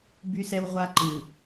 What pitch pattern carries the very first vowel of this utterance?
high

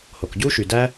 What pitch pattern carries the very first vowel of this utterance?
low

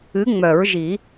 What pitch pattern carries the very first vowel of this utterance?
rising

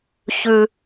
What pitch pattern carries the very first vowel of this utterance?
high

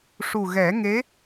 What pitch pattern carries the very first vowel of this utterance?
low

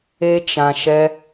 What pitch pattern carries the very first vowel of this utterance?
high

